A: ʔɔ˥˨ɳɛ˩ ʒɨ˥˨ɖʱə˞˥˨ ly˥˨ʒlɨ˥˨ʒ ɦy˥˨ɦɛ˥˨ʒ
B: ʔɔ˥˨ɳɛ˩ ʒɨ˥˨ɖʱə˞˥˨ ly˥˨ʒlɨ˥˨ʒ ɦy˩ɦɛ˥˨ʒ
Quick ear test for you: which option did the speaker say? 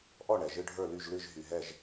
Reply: B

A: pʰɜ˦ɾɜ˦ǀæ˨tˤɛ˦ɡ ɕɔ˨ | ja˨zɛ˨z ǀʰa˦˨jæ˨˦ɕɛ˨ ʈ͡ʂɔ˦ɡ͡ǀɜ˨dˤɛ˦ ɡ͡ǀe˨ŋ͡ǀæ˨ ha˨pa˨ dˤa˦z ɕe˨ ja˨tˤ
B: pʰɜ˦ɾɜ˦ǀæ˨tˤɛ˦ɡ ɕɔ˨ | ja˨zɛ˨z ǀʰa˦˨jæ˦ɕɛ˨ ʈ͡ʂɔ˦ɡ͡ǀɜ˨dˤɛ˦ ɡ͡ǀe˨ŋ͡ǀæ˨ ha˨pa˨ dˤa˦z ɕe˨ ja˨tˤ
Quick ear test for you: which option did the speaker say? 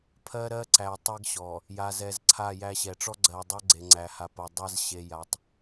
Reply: B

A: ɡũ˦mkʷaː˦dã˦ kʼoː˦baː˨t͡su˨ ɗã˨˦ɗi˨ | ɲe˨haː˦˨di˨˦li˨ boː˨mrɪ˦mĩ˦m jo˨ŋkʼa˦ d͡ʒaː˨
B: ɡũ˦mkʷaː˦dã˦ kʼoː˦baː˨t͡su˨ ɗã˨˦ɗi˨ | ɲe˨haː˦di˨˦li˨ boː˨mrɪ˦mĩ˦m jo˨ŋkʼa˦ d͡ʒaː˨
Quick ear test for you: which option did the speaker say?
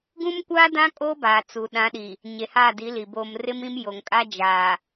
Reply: A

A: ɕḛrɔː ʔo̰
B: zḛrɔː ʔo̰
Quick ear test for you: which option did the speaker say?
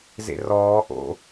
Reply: B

